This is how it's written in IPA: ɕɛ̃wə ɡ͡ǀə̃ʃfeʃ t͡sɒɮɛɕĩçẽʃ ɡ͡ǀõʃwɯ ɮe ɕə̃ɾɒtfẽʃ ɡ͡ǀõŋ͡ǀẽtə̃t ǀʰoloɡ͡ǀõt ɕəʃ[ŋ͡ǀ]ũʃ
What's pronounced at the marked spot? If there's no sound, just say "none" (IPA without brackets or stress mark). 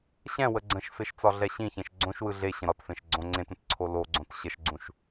ɡ͡ǀ